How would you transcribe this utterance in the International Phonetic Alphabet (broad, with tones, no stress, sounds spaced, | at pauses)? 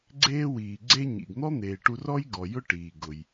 ɡ͡ǀ eː˥ w iː˩ ɡ͡ǀ e˥ ɲ ḭ˩ ɡ n̪ ɔ˥ n̪ eː˩ ʈ u˧ r ɔ˥ j ɡ ɔ˩ j ʊ˥ ʈ iː˩ ɡ ʊ˩ j